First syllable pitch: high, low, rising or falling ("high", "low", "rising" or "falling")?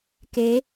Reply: rising